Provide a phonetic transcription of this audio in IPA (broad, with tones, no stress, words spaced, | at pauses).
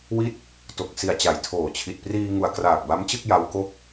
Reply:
wi˥˩t̚ | to˨˩k̚si˨˩a̯ t͡ɕa˨˩jtʰoː˨˩t͡ɕʰi˨˩t̚ priː˧ ŋu˨˩a̯kraː˨˩k̚ ba˦˥mt͡ɕɯ˥˩k̚ ja˦˥wko˥˩k̚